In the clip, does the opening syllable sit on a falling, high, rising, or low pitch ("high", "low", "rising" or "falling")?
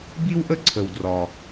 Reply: high